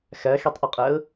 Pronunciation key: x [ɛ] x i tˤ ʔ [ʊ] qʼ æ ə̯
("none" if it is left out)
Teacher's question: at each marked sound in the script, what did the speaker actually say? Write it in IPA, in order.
æ, ʊ

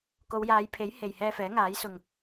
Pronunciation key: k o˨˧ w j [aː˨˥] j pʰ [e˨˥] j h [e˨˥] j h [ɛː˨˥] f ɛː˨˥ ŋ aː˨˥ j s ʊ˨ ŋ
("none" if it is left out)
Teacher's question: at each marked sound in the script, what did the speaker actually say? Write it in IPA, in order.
aː˨˧, e˨˥, e˨, ɛː˧

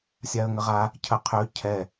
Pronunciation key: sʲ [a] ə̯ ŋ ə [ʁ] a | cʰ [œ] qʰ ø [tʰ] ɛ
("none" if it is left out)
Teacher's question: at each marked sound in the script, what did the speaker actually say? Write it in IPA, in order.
a, ʁ, ə, cʰ

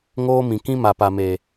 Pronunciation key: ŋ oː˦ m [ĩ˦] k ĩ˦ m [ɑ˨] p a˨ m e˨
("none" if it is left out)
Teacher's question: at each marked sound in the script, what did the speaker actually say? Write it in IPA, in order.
ĩ˨, a˨

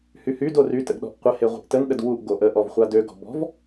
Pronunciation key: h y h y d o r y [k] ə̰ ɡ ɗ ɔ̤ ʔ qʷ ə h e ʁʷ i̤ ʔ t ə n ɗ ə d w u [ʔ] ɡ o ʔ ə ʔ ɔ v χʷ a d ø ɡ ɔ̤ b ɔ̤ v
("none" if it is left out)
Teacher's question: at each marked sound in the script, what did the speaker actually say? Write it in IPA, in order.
t, ʔ

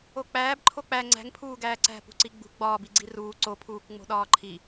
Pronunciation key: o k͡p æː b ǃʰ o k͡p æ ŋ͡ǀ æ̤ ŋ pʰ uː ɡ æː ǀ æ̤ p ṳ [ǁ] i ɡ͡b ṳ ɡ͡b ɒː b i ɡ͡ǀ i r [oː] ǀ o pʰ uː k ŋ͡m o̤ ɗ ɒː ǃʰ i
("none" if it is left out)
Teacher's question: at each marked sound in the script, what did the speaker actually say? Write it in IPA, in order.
ǀ, uː

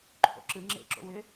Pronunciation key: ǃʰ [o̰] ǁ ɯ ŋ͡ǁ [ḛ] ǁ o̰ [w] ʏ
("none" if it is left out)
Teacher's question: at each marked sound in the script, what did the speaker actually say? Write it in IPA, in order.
o̰, ḛ, w

